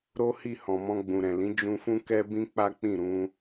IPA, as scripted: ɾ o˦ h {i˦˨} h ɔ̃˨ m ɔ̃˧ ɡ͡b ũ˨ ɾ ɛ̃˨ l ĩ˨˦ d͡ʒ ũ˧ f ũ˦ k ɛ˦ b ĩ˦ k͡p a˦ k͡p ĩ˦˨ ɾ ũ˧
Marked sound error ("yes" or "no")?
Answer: no